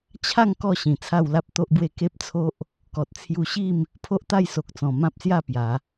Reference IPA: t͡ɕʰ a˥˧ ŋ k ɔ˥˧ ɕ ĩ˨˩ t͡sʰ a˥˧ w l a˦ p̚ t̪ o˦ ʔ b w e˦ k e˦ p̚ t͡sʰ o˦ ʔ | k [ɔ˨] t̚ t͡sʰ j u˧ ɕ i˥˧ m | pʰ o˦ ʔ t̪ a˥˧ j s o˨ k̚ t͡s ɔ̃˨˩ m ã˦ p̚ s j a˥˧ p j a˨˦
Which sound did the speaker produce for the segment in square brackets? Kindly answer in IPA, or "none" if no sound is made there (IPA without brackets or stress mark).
ɔ˨